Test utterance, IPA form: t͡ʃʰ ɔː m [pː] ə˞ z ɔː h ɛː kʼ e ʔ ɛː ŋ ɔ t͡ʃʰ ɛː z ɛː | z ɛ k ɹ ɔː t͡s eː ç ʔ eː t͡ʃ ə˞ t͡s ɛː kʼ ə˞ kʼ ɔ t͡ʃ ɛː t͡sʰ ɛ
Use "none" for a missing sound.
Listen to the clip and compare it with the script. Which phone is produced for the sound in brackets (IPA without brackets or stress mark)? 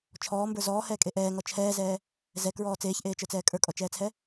b